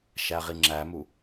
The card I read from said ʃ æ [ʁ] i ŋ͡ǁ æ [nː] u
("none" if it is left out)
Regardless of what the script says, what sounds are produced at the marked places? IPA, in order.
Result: ʁ, m

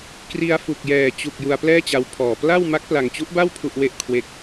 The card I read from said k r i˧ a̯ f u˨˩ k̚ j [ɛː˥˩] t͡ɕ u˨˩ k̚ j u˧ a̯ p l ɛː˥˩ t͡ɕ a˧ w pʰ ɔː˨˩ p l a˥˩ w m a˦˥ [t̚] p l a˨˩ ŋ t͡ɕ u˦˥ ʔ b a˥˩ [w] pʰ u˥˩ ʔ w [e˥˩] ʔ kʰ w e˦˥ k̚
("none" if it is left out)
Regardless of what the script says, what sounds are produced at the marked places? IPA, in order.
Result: ɛː˨˩, k̚, w, e˥˩

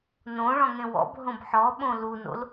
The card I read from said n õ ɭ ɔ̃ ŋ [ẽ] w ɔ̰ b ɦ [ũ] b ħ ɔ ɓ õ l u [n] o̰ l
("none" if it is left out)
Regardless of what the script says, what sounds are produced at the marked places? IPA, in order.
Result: ẽ, õ, n

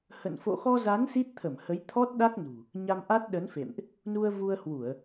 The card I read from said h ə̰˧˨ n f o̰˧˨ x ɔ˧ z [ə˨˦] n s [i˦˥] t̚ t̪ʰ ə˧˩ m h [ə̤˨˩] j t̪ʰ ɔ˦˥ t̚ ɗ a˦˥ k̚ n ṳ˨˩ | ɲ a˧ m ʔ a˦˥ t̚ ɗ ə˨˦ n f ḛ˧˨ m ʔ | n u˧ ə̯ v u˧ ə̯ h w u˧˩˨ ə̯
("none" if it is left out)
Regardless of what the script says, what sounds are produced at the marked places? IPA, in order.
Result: a˨˦, i˦˥, ə˨˦

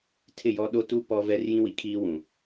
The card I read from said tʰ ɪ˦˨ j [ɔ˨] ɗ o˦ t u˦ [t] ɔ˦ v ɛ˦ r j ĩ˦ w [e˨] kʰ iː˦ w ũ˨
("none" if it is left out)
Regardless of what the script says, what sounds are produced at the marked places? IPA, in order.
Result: ɔ˦, p, i˨

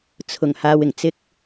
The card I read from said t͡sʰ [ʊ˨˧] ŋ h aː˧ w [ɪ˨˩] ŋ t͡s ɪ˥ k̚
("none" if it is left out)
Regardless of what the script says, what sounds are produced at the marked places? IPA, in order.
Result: ʊ˨˩, ɪ˨˩

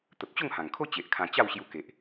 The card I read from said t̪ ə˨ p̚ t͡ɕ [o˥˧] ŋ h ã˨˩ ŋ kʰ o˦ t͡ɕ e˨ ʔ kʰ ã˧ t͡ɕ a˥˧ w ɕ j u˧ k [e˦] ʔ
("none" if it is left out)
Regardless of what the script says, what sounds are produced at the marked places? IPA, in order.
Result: o˥˧, e˨

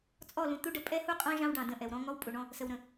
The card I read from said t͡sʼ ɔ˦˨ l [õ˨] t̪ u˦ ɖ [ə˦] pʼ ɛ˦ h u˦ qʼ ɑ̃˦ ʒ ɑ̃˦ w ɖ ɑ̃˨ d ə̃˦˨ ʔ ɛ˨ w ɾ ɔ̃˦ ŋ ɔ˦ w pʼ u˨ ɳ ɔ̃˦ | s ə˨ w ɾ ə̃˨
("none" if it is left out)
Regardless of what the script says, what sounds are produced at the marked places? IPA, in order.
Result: ũ˨, ə˨

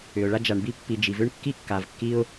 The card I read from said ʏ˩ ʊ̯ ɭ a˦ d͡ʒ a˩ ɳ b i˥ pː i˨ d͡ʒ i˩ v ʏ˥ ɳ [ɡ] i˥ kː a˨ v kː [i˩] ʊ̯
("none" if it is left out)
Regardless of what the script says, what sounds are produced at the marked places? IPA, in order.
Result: kː, i˦

